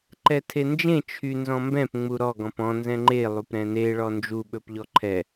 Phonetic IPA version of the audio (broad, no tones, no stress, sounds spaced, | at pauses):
ǃ ɛ tʰ e n d͡ʒ ẽ t͡ʃʰ y n z ɔ̃ m b ɛ̃ p ŋ͡m u ɾ ɔ ɡ ɔ̃ p ɔ̃ n z ɛ̃ ŋ͡ǃ e lˠ u p ɾ ɛ̃ n e ɭ ɔ n d͡ʒ u ɓ ɵ p ʎ ɔ ǃʰ ɛ